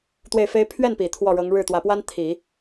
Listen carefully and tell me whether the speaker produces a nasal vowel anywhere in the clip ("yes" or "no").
no